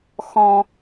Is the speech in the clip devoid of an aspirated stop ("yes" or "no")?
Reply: yes